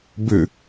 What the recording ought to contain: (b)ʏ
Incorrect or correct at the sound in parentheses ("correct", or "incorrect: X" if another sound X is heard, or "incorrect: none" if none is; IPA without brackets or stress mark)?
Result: correct